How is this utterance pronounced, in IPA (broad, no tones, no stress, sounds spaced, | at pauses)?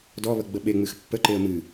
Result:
d ɔ β ə ɡ͡b ə ɓ e ŋ͡m ɨ x pː ə ǃ e ə̯ m ɨ